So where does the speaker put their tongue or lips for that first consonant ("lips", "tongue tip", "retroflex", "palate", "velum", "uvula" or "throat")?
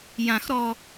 palate